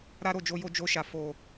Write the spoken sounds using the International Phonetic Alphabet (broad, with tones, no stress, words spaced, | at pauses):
ɾa˦ɾo˦˨d͡ʒo˧jo˧ d͡ʒo˧ʃa˨ fo˨